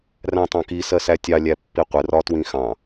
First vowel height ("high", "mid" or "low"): low